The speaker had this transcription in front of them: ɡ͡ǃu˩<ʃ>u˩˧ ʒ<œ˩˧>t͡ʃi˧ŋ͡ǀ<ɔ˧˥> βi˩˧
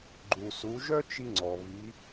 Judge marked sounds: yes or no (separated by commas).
no, no, no